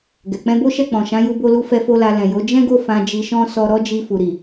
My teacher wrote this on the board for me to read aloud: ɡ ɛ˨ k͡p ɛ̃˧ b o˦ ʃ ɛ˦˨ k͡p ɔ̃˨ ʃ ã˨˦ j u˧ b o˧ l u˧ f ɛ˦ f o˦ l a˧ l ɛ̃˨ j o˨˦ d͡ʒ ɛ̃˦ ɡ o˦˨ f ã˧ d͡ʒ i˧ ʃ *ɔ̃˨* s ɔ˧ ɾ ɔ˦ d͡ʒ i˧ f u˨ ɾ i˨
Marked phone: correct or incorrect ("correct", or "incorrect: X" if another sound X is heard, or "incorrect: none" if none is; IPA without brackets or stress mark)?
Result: incorrect: ɔ̃˦